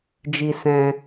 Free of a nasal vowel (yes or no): no